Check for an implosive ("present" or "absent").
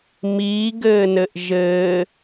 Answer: absent